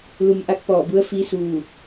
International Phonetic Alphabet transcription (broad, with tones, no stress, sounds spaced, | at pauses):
l u˩ m ʔ a˧ k̚ p ɔː˧˩ b u˧˥ ə̯ f iː˧˥ s uː˧˩